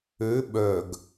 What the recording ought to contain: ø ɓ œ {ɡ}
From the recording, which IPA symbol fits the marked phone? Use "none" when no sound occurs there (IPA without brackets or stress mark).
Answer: ɡ